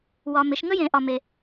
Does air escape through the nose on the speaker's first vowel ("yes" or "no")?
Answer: no